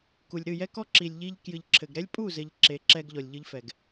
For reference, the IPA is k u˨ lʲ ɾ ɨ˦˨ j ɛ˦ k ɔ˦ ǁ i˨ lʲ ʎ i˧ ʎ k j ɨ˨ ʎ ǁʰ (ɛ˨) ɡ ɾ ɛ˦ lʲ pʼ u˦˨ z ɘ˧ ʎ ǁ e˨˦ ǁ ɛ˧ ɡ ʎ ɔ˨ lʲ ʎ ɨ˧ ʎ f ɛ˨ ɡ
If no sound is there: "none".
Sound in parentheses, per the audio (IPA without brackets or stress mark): ɘ˨